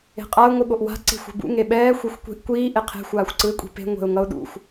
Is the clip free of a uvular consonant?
no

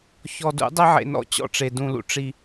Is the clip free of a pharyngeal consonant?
no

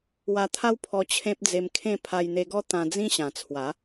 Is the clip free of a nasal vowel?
no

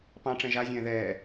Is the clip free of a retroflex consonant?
no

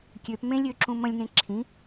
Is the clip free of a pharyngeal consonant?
yes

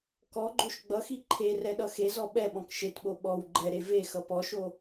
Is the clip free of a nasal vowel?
no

